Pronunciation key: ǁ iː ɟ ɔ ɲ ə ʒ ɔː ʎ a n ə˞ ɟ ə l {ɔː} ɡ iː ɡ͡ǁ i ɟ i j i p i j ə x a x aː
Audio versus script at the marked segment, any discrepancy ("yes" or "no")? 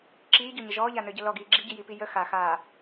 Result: yes